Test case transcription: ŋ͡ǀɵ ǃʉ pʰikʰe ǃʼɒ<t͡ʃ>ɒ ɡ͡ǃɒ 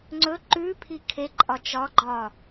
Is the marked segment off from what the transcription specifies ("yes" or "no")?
no